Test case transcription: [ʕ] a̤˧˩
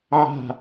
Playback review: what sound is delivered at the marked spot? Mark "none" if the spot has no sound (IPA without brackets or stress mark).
ʕ